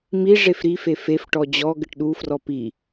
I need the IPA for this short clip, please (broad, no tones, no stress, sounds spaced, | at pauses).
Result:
m i ʐ e f ɾ i f e f e f ʈ ɔ d͡ʑ ɔ ɡ ɘ ʈ ɗ u f r ɔ p i